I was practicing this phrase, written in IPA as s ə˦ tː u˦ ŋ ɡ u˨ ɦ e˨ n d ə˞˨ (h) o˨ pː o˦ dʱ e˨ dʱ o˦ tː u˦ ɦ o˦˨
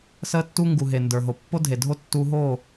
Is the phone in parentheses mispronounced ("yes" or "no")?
yes